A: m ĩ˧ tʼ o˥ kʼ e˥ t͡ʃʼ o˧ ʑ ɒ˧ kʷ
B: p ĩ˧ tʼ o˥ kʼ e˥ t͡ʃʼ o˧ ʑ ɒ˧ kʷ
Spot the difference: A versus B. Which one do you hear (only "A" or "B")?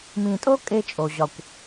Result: A